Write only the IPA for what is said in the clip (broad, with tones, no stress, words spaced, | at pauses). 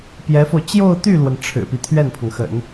pjɛ˧˥fo˧ʊ̯ t͡ɕjo˥˧ʊ̯t̪y˥˩lwə˩n ʈ͡ʂʰɻ̩˨˩pi˦ t̪ʰɥɛ˥˩npʰɤ˩ŋxə̰˨˩˦n